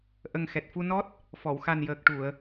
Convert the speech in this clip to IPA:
ʔə˨˩ŋxɛ˨˩t̚fu˧nɔ˦˥t̚ | fɔ˨˩˨wxa˨˩njəː˨˩k̚ ʈu˨˩˨ə̯

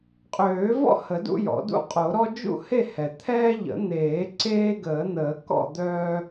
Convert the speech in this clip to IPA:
qʼøː˨˩˦vɔ̰˥˨ hə˨˩˦dṵ˦jɔ̰˨˩˦ dṵ˦qʼo˨˩˦ɾɔ˦ d͡ʒṵ˥˨he˥˨ hɛ˩t̪ʰɛː˦ʎə̰˨˩˦n̪eː˨˩˦ ǀeː˦ɡəː˨˩˦n̪əː˨˩˦ kɔ̰˥˨d̪œː˦

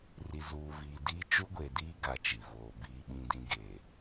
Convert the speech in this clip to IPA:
ri˨zuː˨viː˨diː˦ t͡ʃu˦ɡʷe˨diː˦ ɡa˨ t͡ʃi˨voː˨biː˦ ɓĩ˦dĩ˦ɡe˨

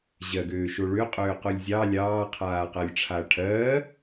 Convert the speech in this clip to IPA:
ʑɜɡøːʃo ɭøqʼøːqolʲ zʲɑ lʲɑːqʰaːqɜlʲ ʈ͡ʂʰaʈʰɜː

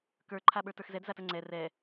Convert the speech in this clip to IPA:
kə˞ǃʰa ɓə˞tə˞xzɛd zatəŋ͡ǀɛ rɛ

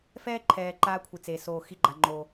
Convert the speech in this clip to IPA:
fɛː˦ǃʰɛː˨ǃaː˧ kʷʰi˨t͡se˨soː˧ xi˧ɡ͡ǃa˨ ŋ͡ǃo˨

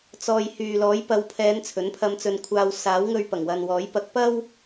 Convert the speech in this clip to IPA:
t͡sɔː˨jhyː˨ lɔː˨˥jpɐ˨˧wpʰɛː˨˧n t͡sʰɵ˨˥npʰɐ˧mt͡sɵ˧nkʷʰaː˧w saː˨˥w ŋɵ˧ɥpɐ˨˩ŋwɐ˨nwɔː˨˥j pɐ˧k̚ pɐ˥w

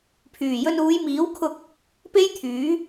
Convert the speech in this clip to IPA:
pʰyː˨˩jɵ˧n uː˨˧jmiː˨˥wkʰʊ˧k̚ | pe˥jt̪ʰyː˨˥

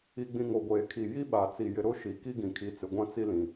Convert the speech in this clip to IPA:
i˨ɡ͡bĩ˨ ŋo˨ɡʷeː˨kʰi˨ ji˦ɓa˨ t͡si˨jɪ˨ ɾʊ˦ʃi˨ ki˦ɡĩ˨kʰi˨˦ t͡sɪ˨ɡʷã˦t͡si˦lĩ˨

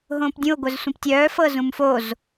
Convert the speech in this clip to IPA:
ɦõːpdʲũo̯ ɡʷœzsʷĩptʲœː fɤzũmfoz

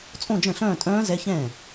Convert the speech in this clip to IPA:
t͡sʼõ˥˧d͡ʒə̃˥˩ɬœ̃ː˥˧tʼœ̃ː˦˥ zɛ˦˥çɛ̃˥˩

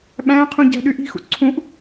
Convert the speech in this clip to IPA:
ɓæ̃qʰũ ɟæ̤ɗyʔi̤xṵ ǀʰũʔ

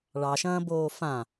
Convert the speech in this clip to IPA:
ɭɑʃɐ̃ː boːfã

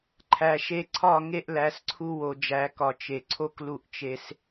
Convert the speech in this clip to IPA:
ǃʰæ˨ʃe˦ ǀʰɒ˦˨ ŋe˦ʔlæ˨˦sǀʰu˦ wo˨ d͡ʒæ˨˦ kɒ˨t͡ʃe˨ ǀʰo˦klu˦˨ʔ t͡ʃe˦s

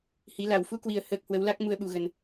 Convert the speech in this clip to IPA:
hi˨˦la˨˩w fu˧kwi˨˩ə̯ həː˨˩k̚ hwə˨˦wla˦˥k̚ mu˧ə̯ɓu˨˩ɣə˨˩n

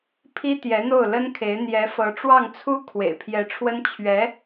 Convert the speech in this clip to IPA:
pʰi˥t̪jɛ˧˥n̪o˥˩ʊ̯ lə˥nkʰe˧˥ɪ̯ n̪jɛ˧˥fɤ˧˥ ʈ͡ʂwɑ˥˩ŋt͡sʰu˥ kʰwḛ˨˩ɪ̯pʰjɛ˧˥ʈ͡ʂʰwə˥n t͡ɕʰɥɛ˧˥

